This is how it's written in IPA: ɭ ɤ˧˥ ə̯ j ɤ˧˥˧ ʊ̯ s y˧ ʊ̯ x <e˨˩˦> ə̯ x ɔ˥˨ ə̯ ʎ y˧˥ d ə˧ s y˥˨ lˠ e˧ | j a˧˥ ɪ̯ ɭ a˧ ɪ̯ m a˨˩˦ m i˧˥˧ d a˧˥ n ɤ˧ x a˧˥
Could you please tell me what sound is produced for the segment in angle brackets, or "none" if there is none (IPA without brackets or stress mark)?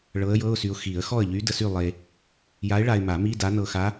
i˨˩˦